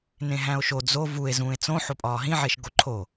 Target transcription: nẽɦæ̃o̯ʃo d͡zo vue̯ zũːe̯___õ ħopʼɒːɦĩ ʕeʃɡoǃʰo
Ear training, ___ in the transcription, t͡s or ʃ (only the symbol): t͡s